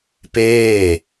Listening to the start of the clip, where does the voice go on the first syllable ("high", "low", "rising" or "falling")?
falling